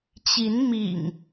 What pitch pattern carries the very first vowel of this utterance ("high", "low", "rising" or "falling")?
rising